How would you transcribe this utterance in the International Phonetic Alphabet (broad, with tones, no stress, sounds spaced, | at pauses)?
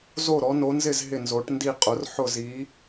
z o˥˨ ɾ ɔ˨˥ n o˨˥ n z ɪ˥˨ z ɦ ɪ˥˨ n z o˨˥ ʈ n d i˥˨ qʼ ʊ˨˥ r ħ ʊ˥˨ z i˨˥